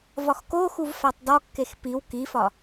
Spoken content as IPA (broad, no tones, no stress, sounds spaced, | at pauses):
v ɒ x k o x u v f æ tˤ d ɒ kː e x p i w k i f ɒ